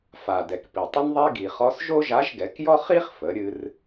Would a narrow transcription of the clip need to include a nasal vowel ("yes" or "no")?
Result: no